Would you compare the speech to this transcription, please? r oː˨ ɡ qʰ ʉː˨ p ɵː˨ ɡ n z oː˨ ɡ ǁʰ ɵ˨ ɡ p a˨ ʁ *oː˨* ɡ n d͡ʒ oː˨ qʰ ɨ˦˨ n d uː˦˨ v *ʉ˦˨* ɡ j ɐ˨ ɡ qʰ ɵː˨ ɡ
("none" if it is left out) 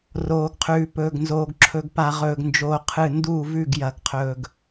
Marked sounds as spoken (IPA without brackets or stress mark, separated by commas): ɵː˨, ʉ˦˨